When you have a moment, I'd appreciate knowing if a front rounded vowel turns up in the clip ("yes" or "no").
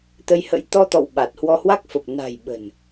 no